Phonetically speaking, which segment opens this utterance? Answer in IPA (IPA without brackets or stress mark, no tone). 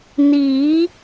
n